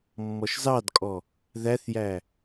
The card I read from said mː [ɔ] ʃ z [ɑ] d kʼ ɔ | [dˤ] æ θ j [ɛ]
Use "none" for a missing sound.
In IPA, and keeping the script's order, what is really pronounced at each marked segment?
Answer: ɔ, ɑ, ð, æ

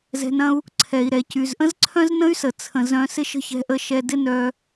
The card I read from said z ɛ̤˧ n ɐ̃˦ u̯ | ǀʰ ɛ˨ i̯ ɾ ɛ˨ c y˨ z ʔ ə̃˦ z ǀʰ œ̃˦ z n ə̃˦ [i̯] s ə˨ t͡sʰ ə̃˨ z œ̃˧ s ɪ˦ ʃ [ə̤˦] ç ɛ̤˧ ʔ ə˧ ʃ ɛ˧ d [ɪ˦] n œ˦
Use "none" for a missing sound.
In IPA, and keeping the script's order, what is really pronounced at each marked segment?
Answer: y̯, ə̤˦, ɪ˦

